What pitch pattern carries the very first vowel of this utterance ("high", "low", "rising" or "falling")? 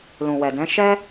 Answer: low